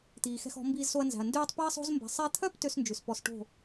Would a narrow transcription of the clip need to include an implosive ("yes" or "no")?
no